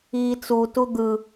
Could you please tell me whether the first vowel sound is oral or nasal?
oral